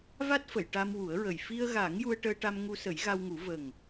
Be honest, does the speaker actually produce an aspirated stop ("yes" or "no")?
no